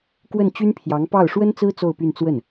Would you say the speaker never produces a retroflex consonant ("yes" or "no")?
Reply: no